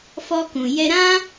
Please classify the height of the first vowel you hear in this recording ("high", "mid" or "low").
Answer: mid